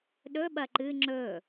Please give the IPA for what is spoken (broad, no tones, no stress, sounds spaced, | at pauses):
ɗ ɵ ɓ ɐ ǃ ɨ ŋ͡ǁ ɵ